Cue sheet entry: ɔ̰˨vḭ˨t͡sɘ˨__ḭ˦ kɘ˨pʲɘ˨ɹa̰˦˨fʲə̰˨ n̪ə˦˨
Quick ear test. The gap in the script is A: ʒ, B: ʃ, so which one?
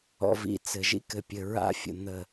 A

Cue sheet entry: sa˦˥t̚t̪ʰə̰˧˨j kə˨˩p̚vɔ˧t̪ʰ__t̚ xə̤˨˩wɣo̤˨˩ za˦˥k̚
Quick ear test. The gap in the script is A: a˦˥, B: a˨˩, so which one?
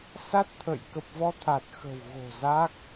B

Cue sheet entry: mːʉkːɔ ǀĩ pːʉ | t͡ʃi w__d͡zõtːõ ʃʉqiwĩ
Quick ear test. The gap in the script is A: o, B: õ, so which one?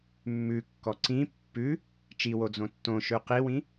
A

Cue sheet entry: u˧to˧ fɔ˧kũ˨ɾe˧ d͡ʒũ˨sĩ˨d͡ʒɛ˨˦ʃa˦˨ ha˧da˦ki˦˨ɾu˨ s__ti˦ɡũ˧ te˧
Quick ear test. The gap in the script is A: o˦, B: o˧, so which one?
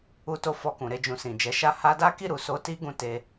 B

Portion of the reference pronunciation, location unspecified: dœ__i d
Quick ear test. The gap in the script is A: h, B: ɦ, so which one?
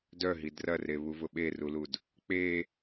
B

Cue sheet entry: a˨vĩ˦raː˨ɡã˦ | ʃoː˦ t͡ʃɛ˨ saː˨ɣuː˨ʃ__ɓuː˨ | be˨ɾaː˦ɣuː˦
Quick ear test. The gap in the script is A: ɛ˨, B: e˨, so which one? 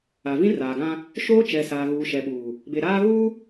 A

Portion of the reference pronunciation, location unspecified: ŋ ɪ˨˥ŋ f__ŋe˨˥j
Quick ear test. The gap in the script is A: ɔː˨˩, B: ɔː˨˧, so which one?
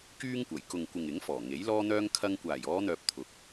A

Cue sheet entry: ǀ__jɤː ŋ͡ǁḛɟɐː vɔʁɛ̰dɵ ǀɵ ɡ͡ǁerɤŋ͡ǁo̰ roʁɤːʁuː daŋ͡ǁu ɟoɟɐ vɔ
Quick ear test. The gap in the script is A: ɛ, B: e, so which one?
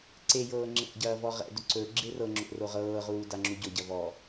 B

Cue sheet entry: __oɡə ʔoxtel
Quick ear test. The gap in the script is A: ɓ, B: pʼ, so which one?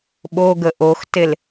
A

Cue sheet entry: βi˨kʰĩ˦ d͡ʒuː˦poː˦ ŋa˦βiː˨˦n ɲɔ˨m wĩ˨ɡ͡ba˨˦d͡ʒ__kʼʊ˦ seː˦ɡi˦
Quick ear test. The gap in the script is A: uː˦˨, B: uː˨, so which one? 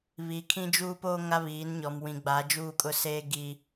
A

